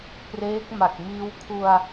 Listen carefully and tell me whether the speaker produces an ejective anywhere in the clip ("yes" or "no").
no